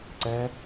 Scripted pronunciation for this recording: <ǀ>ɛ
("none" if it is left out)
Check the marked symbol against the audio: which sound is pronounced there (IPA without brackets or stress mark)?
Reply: ǀ